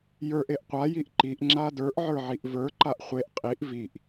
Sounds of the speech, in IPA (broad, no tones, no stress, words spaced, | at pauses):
jə˞ʔ eʔqʷajiʔ ǃiʔŋ͡ǁa də˞ʔ ʕə˞ʕiʔvə˞ǃaʔ χʷeʔ qʼiʔ viʔ